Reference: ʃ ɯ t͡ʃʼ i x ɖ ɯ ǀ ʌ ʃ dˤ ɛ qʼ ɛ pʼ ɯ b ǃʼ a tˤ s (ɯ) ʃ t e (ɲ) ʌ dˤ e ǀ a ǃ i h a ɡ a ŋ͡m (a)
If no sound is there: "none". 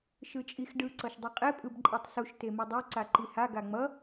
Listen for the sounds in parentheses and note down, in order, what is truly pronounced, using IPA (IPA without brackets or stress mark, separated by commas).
u, m, ʌ